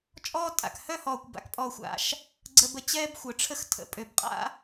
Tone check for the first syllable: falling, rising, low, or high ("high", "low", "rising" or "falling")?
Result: high